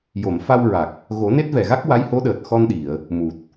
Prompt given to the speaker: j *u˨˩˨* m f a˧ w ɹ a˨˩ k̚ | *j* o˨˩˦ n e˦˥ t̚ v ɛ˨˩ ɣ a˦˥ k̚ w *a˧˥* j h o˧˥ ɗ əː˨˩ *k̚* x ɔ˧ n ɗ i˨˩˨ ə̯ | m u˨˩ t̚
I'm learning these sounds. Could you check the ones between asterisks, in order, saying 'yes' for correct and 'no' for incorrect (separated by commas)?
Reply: no, no, yes, no